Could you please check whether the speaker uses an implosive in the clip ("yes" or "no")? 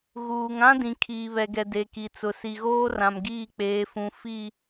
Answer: no